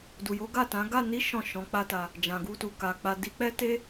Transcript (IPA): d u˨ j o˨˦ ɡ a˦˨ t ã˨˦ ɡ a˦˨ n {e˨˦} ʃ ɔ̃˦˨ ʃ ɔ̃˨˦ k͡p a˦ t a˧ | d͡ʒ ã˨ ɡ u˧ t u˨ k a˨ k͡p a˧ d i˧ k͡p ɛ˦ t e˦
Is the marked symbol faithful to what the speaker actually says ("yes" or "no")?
no